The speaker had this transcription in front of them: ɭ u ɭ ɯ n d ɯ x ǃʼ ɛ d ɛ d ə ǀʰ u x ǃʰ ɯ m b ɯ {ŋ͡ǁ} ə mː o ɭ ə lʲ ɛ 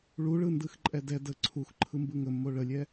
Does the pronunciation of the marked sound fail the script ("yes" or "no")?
yes